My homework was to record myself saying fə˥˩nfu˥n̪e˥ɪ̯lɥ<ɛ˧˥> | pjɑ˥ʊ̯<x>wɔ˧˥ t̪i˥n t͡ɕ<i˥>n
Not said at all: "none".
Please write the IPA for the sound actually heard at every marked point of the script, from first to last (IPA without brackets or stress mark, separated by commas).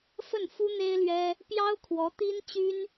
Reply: ɛ˥, kʰ, y˥